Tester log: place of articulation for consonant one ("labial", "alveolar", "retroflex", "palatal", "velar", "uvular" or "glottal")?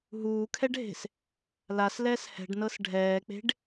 glottal